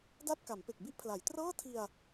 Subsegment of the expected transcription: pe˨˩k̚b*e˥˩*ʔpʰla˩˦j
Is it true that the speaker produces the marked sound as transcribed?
no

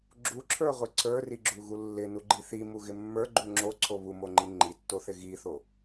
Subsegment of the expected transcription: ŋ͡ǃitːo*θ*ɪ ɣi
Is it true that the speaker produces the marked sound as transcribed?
yes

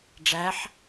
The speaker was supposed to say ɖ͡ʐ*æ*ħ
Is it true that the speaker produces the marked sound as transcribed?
yes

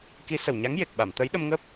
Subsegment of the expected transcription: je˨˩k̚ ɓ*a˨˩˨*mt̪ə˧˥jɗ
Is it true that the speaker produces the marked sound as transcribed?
yes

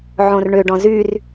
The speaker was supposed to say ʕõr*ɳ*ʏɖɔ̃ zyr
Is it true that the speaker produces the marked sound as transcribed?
yes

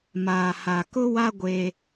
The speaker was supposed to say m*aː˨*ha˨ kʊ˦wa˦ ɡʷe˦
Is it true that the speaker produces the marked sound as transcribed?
yes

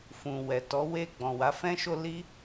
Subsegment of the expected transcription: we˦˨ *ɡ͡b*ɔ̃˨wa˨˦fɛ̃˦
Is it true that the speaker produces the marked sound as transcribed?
yes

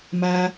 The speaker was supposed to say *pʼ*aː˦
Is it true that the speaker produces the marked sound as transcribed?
no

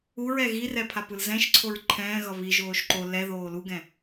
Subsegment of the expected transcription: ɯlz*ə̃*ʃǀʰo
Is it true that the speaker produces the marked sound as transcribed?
no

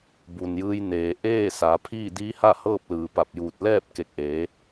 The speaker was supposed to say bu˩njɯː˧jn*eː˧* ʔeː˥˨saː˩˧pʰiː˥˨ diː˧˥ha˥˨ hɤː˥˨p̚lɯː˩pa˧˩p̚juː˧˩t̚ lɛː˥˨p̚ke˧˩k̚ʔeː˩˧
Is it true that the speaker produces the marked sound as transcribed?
no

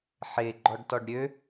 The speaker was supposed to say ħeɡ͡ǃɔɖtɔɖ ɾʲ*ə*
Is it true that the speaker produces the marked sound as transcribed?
no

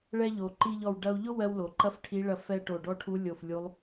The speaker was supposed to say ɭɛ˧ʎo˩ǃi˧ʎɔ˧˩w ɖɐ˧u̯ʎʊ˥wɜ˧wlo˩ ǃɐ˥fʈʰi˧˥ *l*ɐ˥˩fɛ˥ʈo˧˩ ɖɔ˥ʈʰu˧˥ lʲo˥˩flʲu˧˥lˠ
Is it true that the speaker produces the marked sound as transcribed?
no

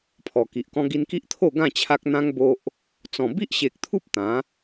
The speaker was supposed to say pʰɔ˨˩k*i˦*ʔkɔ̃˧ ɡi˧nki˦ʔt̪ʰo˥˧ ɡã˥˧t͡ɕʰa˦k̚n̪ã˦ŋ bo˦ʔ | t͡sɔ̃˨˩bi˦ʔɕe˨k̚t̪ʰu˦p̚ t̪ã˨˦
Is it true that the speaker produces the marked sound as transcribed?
no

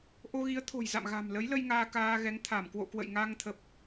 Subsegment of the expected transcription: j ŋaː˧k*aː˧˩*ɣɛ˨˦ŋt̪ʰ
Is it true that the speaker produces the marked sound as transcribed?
no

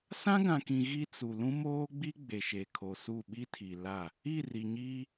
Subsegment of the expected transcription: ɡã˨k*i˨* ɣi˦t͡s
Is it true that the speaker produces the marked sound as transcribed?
no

